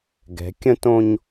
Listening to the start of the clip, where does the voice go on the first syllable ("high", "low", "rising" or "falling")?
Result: rising